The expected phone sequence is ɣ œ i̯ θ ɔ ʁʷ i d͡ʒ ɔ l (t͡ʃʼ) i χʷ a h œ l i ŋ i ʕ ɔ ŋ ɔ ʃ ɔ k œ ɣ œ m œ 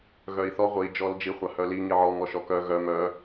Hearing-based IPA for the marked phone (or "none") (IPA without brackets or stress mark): d͡ʒ